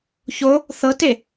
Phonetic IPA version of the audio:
ç o | θ ɤ t e

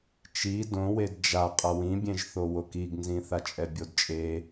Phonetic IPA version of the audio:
t͡ʃ i d õ w e d d͡ʒ a qʼ ʌ w ĩ bʲ ẽ ʒ θ o w o k i ɡ n z ĩ θ a t͡ʃʼ ɛ bʲ o d t͡ʃʼ e

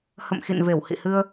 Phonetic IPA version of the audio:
h ə̰˧˨ m x ḭ˧˨ n v e˧˩ w h ḭ˧˨ h ɨ˧ ə̯

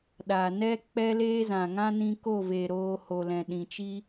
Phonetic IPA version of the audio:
ɗ a˨ n ɛ˦ k͡p ɛ˦ l eː˦ z ã˨ ŋ ã˦ n ĩ˧ k o˦˨ v eː˨ ɾ oː˧ h o˨ l ɛ̃˨ ɗ ĩ˨ t͡ʃ i˦

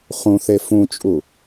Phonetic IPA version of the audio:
χ ũ θ e f ũ t͡ʃʼ u

